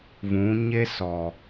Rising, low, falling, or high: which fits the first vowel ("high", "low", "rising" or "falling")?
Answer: rising